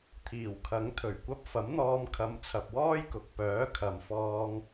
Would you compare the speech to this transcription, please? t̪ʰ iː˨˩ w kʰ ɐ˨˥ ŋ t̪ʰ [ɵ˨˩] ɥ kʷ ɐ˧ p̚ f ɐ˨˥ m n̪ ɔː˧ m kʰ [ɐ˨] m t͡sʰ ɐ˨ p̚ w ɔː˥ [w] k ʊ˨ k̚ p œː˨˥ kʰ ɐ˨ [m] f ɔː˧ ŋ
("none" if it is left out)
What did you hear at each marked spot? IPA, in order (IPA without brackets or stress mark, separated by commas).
ɵ˨˩, ɐ˧, j, m